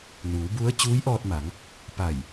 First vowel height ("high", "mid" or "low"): high